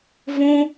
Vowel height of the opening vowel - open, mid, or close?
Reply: close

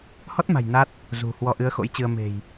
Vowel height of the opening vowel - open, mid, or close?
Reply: mid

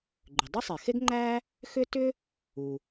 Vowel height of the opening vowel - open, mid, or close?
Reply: close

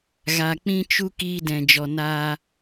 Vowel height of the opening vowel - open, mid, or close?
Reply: open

